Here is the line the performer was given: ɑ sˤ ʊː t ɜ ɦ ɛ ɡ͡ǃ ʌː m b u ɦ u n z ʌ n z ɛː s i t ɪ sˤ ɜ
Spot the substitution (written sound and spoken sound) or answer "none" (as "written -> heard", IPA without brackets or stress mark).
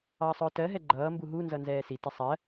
none